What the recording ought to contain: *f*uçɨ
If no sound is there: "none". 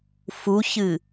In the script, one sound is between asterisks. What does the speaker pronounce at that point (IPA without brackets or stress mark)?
f